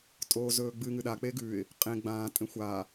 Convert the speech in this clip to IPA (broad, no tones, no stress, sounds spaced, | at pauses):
tʼ oː z ɵː ɡ͡b ɨ ŋ ɨ ɗ a k͡p e ɡ ʉ ɪ̯ | qʼ ẽ ɡ͡b ãː tʼ ẽ xʷ a